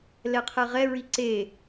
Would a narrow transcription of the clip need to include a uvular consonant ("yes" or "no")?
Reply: yes